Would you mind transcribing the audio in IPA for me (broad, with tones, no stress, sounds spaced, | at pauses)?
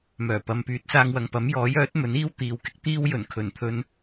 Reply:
m œː˨˩ p ɐ˨˧ m p yː˨˥ t̚ s aː˧ ŋ w ɐ˨ ŋ p ɐ˨˥ m j ɔː˨˥ j œː˨˥ t̚ m ɵ˨˥ n iː˥ w t̪ iː˨ w k ɪ˧ k̚ t̪ iː˧ w j ɵ˨˩ n kʰ ɵ˨˩ n t̪ʰ ɵ˧ n